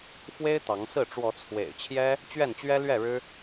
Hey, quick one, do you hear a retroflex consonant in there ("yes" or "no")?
yes